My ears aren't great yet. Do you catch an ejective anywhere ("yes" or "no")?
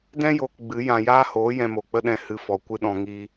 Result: no